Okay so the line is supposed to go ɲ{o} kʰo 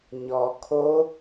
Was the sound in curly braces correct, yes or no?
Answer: no